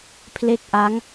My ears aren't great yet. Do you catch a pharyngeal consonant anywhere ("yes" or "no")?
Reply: no